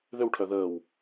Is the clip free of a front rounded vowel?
no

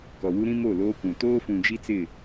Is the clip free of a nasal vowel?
no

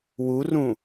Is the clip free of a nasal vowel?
no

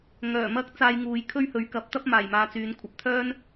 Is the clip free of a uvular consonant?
yes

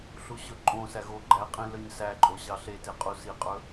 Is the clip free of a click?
no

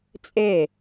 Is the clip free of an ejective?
no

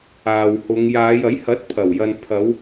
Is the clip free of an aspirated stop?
no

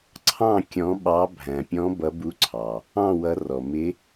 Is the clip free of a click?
no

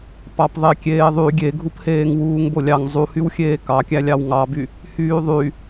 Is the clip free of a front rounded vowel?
no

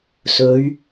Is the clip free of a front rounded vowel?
yes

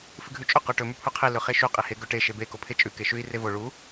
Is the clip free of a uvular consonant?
no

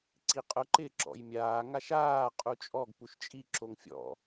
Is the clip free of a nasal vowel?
yes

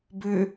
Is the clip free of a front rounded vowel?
no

